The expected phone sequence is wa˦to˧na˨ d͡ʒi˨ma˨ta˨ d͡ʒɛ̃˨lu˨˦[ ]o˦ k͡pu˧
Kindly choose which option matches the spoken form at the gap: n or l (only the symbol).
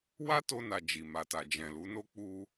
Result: n